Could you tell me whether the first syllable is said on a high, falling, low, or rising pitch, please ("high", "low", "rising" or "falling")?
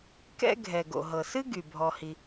high